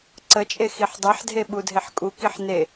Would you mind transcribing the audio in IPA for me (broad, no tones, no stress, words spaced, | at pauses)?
ǀət͡ʃʼe xiħdˤɛħdʱe ɓudʱeħkʼukiħ ne